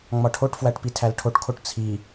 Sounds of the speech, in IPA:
ŋ͡mɒʈʰoʈfwæʈ pitʰælʈʰoʈkʰoʈ t͡sʰi

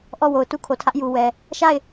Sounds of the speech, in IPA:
ʔɔ˦˨ wo˨ʊ̯tu˦kʰo˨tʰä˦ʔ ju˨wɛ˨ | ʃa˦˨ɪ̯

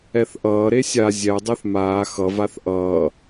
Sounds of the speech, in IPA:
ɛθʔʌː ɾesʲa zʲɛ dˤeθmaː xʌ vaθʔʌː

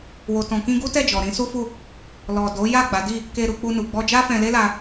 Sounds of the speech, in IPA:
wo˨tɔ̃˨kĩ˧ ɡu˦tɛ˦˨d͡ʒɔ˨ ɾĩ˨˦su˦fu˦˨ | lɔ˨ do˨˦ja˦˨ ɡ͡ba˨˦di˦˨ | ke˧ɾu˧ k͡pu˧nu˨ ɡ͡bɔ˧d͡ʒa˦fɛ̃˧le˦ la˧

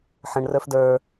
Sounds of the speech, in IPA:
ħə̃ɳ rə˞fdə˞

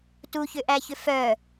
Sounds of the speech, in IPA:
tuçʏʔæçʏ fœ

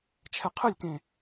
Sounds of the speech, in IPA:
t͡ʃʰɛqʰɘlʲkẽ

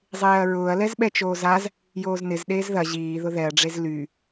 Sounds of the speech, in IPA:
zˤeːɐ̯ɹʊːɐ̯lɛz ɓɛt͡ʃoːzaz | joːznɪz ɗeːzðɐ ʑiː ðʊðɛɐ̯ɖ͡ʐez ly

